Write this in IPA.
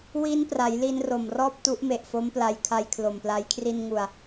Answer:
w i˦˥ n p r a˩˦ j l i˧ n r o˨˩ m r ɔː˥˩ p̚ t u˦˥ ʔ m e˨˩ ʔ f o˦˥ m p l a˧ j kʰ a˧ j kʰ l o˨˩ m p l a˦˥ j kʰ r i˧ n ŋ u˨˩ a̯

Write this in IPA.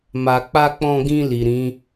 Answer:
m a˨ k͡p a˧ k͡p ɔ̃˧ ɡ ĩ˧ l i˨ ɾ ĩ˨˦

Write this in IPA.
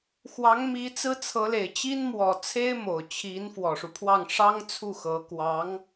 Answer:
x w ɑ˧˥ ŋ m i˧˥ t͡s ɹ̩˥ t͡sʰ ɤ˧˥ l e˨˩ ɪ̯ t͡ɕ i˥ n m w ɔ˨˩ t͡sʰ e˥ ɪ̯ m o˨˩ ʊ̯ t͡ɕʰ i˧˥ n f w ɔ˨˩ ʂ u˦ pʰ w ɑ˥˩ ŋ ʂ ɑ˥ ŋ t͡sʰ u˥˩ x ɤ˧˥ k w ɑ˧˥ ŋ

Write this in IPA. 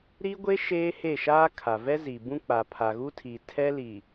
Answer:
ɾ i˦ ɡʷ e˦ ʃ eː˦ h e˦˨ ʃ aː˦ kʰ a˨ v ɛ˦ z i˨ b ũ˦ k͡p a˨ pʰ a˨ ɣ u˦ tʰ i˨ tʰ ɛ˦ l i˨

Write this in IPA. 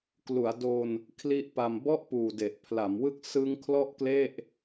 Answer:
k l u˩˦ a̯ d o˧ n | kʰ l i˦˥ ʔ p a˧ m b ɔ˥˩ ʔ p uː˨˩ d e˨˩ ʔ pʰ l a˩˦ m w ɯ˦˥ k̚ s ɯ˦˥ ŋ kʰ l ɔ˥˩ ʔ k l e˥˩ ʔ

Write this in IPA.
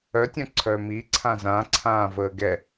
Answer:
œ tʲ œ̃ ǀʰ œ m i ǀʰ ã z ã ǀʰ ãː v əː ɡ ɛ

